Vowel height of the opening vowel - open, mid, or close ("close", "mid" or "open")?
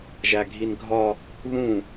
open